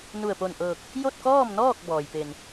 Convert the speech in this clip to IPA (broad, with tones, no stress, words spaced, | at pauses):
nu˧˩ə̯po˧˩nʔɤː˧˩k̚ | jo˥˨t̚kɔː˥˨mnɔː˥˨k̚ bɔː˩jpe˧˩n